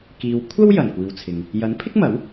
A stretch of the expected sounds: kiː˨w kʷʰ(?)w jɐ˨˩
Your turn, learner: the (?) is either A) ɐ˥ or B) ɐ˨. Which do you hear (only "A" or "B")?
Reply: A